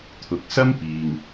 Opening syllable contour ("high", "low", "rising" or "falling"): low